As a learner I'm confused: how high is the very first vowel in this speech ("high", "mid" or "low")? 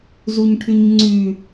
high